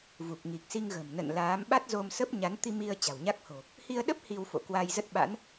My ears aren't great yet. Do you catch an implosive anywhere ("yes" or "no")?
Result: yes